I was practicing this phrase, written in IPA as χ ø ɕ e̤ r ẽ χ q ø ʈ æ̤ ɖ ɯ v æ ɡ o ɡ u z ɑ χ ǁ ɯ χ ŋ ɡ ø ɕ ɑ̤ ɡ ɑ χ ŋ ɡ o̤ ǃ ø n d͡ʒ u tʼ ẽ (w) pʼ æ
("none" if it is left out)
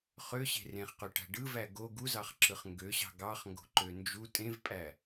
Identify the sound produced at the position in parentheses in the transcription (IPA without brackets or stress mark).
v